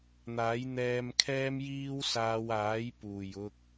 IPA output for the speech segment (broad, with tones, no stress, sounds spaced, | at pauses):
n̪ aː˨˥ j n̪ ɛː˧ m kʰ ɛː˥ m j iː˥ w s aː˧ w aː˨˥ j p uː˨˩ j ʊ˧ k̚